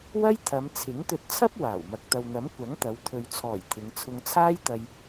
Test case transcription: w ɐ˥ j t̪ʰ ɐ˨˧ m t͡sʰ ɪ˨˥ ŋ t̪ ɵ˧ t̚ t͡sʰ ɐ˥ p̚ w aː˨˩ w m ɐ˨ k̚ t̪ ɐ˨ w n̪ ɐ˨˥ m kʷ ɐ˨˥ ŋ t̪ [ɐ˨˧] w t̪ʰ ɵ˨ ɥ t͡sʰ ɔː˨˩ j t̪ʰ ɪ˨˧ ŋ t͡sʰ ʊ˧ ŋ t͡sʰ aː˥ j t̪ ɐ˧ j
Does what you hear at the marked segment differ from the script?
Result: no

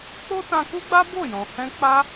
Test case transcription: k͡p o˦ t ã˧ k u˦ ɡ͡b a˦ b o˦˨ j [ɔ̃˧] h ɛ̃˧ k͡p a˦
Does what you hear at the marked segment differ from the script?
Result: yes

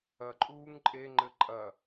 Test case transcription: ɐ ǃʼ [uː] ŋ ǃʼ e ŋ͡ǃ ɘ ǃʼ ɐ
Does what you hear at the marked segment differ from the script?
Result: no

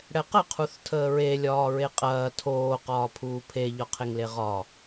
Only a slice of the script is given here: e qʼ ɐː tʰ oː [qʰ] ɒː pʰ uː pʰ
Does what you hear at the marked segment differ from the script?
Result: yes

